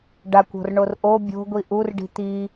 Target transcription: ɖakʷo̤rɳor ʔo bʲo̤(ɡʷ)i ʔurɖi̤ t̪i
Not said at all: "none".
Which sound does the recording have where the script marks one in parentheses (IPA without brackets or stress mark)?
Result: ɡʷ